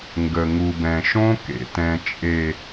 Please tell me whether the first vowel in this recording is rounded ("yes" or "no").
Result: no